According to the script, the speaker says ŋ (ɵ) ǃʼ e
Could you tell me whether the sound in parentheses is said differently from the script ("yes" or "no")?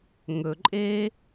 no